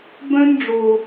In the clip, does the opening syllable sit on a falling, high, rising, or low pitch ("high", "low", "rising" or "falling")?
high